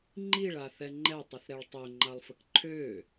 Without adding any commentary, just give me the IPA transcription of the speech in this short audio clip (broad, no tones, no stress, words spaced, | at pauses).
ŋ͡ǃiɭa θɛŋ͡ǃɛtˤiθɾɛɭ tˤøŋ͡ǃalˠfək ǃʰø